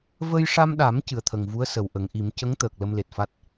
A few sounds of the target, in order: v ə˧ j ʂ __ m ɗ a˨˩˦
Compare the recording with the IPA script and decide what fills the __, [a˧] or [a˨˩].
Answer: a˧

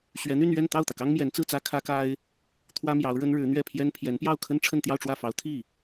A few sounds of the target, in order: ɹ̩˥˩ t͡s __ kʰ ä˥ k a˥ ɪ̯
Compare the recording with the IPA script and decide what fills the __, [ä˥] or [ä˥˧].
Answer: ä˥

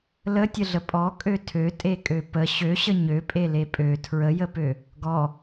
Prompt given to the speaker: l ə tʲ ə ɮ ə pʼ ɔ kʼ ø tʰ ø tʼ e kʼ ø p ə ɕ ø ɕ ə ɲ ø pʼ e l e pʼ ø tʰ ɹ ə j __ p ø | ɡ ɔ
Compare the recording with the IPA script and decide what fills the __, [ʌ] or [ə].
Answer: ə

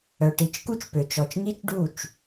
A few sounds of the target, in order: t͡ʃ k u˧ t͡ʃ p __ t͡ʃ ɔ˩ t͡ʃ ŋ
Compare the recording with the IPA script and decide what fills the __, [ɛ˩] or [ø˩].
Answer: ø˩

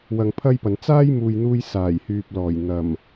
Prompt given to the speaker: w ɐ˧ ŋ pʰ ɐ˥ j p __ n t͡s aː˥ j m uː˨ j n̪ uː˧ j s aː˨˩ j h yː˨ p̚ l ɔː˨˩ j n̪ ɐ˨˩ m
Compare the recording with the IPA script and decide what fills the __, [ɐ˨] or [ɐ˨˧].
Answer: ɐ˨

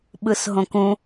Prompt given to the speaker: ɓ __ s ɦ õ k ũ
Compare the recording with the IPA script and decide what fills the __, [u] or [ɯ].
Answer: ɯ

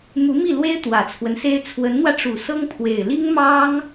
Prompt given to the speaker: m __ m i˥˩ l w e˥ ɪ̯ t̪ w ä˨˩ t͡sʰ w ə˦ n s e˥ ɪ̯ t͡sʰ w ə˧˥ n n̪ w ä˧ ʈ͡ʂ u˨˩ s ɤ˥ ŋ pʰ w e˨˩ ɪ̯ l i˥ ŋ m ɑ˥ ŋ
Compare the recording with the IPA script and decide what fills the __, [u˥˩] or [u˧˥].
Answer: u˧˥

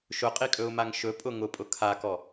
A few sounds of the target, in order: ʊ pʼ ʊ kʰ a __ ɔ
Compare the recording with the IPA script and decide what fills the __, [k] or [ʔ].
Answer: k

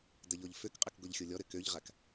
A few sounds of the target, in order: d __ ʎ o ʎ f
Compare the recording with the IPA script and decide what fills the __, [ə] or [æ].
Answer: ə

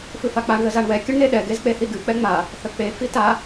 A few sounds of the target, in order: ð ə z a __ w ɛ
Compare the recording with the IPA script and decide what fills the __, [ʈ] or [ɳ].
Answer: ɳ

